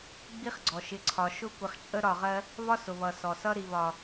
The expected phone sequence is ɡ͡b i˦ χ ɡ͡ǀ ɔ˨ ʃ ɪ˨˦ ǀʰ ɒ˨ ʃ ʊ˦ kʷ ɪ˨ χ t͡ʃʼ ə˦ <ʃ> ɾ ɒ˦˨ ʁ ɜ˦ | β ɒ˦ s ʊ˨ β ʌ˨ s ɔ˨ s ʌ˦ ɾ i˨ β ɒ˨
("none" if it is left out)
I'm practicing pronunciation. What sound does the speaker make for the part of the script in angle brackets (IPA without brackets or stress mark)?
none